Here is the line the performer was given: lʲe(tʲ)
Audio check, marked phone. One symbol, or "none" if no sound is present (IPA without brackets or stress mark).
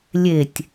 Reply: tʲ